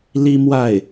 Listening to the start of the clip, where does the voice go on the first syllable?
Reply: high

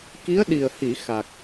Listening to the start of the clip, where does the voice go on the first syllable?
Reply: rising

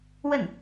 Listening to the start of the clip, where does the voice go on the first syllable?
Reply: falling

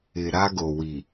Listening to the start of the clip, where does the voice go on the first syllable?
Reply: low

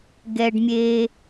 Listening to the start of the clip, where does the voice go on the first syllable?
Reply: high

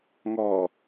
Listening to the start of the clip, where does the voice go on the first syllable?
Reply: low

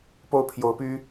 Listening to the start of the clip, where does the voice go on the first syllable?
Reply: falling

